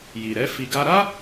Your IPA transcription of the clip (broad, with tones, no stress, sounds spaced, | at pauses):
j i˨ ɾ ɛ˨˦ f i˧ ɡ a˧ ɾ a˦